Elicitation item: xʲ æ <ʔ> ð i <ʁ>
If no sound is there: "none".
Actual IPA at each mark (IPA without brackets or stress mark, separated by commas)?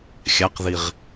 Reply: q, ʁ